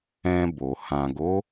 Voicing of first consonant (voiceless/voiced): voiced